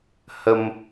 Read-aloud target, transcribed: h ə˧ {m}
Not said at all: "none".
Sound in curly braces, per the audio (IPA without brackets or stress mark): m